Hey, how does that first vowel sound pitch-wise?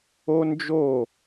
high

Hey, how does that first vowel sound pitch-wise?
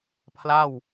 falling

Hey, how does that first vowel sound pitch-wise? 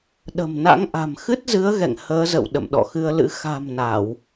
low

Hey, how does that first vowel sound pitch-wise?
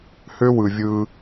high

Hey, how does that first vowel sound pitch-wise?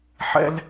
high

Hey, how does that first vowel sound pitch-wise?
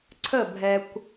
falling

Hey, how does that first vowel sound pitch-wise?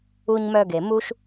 high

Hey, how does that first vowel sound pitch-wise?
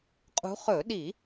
rising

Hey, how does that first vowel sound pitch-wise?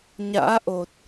rising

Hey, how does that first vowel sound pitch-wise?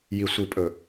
low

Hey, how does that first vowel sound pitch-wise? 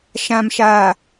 low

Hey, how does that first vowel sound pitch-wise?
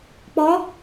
rising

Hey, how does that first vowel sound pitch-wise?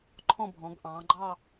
falling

